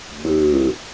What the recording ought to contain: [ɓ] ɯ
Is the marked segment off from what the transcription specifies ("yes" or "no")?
no